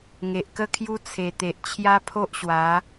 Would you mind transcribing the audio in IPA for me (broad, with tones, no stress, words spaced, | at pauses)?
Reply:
ŋe˨ʔkə˥˧kʰju˦ t͡sʰe˨˩ t̪e˨ʔt͡ɕʰja˦pʰo˦ʔɕwa˨˦